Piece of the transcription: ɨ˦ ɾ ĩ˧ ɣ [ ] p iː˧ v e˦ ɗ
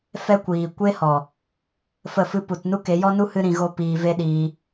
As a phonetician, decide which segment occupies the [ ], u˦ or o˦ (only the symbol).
o˦